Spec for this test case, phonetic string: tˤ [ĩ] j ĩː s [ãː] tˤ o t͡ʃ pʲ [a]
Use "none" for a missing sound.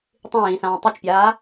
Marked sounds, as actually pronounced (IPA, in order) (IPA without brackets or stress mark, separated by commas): ĩ, ãː, aː